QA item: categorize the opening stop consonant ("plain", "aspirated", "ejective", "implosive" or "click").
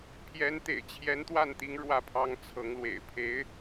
aspirated